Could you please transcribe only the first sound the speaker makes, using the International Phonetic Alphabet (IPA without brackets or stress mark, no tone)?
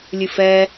lʲ